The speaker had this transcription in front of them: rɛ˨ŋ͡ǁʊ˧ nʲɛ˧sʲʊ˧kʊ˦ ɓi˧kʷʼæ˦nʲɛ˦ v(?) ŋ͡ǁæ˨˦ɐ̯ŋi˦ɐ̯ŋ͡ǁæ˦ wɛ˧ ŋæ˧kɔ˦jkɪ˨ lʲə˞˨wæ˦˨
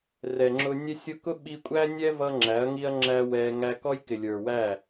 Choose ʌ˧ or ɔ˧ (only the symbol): ʌ˧